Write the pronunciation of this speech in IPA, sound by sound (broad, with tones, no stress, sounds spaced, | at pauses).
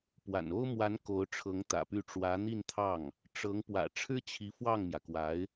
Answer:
p w a̰˨˩ n o˥ ʊ̯ m w a˧˥ n k o˧˥ ʊ̯ ʈ͡ʂʰ ɤ˧˥ ŋ t̪ ä̰˨˩ p y˥˩ ʈ͡ʂ w ä˧˥ n̪ i˥˧ n t̪ʰ ɑ˥˩ ŋ | ʈ͡ʂ ɤ˧˥ ŋ p w ä̰˨˩ ʈ͡ʂʰ ɻ̩˥ t͡ɕʰ i˧˥ f w ɑ˥˩ ŋ m j ä˩ k w a˧˥ ɪ̯